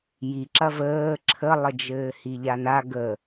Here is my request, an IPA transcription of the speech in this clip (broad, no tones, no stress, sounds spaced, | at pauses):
j i ǁ ɐ v əː ǁʰ ə lˠ ə d͡ʒ ɘː h i ʎ a n a ɡ ə